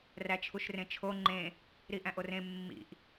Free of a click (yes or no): no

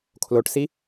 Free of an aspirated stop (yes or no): no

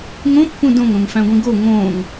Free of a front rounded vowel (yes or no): yes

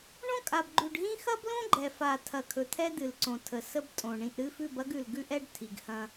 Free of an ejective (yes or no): no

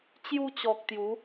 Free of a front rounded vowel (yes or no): yes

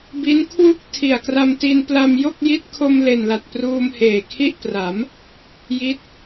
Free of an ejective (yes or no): yes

